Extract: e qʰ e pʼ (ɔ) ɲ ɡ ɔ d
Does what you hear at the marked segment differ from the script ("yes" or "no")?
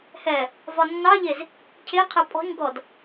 yes